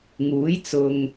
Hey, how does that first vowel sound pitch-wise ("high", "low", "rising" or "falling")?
rising